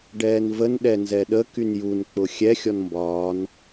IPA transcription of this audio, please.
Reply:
ɖ ɛː n v ə n ɗ ɛ n z ɛ ɗ ə k y n j u n k͡p ʊ xʲ ɛ xʲ ɔ n m b ɒː n

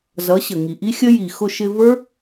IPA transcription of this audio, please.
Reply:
z ʌ˨˦ ɕ ə˨ ŋ i˨ ʔ i˦ xʲ ə˦ j i˨ x ʊ˧ ʃ ɪ˧ v ə˞˦

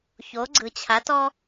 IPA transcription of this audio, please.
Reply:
ç o˩˥ ɡ͡ǀ ɯ˩ t͡ɕʰ a˩˥ t ɔ˥

